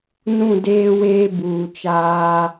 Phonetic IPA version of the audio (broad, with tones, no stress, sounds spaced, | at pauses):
n ũ˦˨ d eː˦ w eː˦ b uː˨ t͡ʃ aː˦